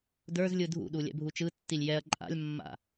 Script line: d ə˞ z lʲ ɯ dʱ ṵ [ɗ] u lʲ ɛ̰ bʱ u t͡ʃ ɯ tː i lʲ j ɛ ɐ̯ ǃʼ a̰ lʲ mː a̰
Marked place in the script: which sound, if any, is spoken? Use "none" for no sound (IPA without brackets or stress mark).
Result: ɗ